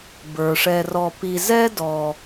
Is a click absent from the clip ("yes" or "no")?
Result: yes